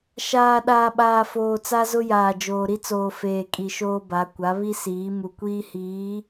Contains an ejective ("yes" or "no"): yes